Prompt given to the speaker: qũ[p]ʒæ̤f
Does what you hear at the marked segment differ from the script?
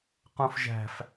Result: yes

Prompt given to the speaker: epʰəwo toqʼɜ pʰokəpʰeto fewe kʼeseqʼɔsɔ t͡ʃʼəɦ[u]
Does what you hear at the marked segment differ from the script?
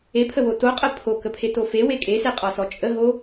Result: yes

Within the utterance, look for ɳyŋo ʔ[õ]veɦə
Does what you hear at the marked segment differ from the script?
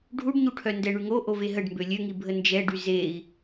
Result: yes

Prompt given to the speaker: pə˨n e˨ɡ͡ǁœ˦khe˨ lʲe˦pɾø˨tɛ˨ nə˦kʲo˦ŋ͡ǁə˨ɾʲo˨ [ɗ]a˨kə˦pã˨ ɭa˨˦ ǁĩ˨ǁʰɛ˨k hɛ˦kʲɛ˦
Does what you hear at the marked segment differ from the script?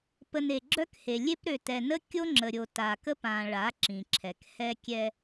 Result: yes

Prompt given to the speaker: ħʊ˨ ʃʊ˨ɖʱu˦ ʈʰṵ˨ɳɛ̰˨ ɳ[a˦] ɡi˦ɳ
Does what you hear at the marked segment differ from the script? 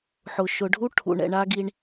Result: no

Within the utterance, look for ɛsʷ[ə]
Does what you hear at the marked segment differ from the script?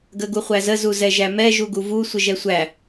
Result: yes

